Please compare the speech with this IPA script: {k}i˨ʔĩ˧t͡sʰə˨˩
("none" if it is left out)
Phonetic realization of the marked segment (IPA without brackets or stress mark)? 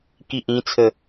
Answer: k